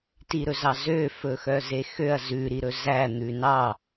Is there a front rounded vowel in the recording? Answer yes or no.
yes